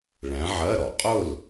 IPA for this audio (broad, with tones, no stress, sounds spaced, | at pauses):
ɭ æ̃˨˦ ʕ ɜ˧˥˧ ɾ ɔ˧˩˧ qʼ ʊ˥˨ l